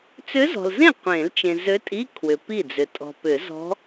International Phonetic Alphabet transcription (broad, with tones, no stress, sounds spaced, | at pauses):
t͡s ʏ˧˥ z ɔ̤˨ l z ẽ˥˩ qʷ ẽ˨˩˦ l t͡ʃ ẽ˨ z ø˧˥ tʼ i˧˥˧ kʰ w ʏ˨ p i˥˩ d͡z ʏ˨ tʼ ɔ̤˨ p ʏ˨˩˦ z ɔ̤˧˥